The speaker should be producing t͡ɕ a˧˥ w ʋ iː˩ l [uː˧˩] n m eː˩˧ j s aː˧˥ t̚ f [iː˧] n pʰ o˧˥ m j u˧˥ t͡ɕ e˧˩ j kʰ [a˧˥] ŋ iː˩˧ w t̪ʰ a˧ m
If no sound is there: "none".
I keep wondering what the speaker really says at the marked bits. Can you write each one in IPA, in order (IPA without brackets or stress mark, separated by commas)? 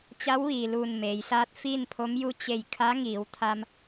uː˧˩, iː˥˨, a˧˥